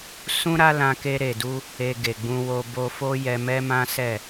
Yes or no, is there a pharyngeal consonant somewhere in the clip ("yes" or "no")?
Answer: no